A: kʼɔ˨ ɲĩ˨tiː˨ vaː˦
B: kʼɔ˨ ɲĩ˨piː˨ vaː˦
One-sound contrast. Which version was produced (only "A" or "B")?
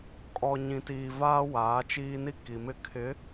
A